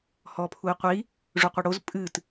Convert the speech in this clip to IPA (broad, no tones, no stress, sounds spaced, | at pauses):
h ɔ pʰ u i̯ qʷ i | ʐ u qʷ e ɽ o z pʼ ɨ t